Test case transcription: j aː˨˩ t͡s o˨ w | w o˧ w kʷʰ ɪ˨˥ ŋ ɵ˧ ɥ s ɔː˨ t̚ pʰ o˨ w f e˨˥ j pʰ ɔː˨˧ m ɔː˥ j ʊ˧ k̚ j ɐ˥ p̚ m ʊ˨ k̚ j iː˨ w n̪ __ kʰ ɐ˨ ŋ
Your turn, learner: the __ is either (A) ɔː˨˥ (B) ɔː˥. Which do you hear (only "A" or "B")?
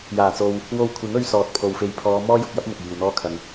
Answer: B